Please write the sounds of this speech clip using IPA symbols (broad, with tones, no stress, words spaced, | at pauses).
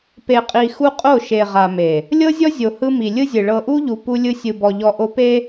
pe˨qʼi˨ xu˦qʼo˦˨ʃe˨ ʁa˨me˨ | lʲɤ˦zʲɔ˦zʲo˨ hɯ˦ mi˨ lʲɯ˦zʲɯ˨ ɭɤ˨ʔu˦ʎu˨ pu˦lʲɯ˦ sʲɯ˨bɔ˨ʎɔ˨ ʔo˦pe˦